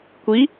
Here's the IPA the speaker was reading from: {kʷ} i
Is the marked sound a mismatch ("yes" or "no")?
no